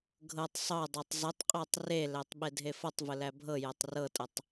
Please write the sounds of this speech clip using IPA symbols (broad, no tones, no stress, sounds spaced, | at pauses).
ɡʱ ɤ tˤ sˤ ɤ dˤ ɤ tˤ z ə tˤ qʼ æ tˤ r e l æ tˤ ɓ e dʱ e f ʌ tˤ v ə l æ bʱ ɤ j æ tˤ r ɤ tʼ ə tˤ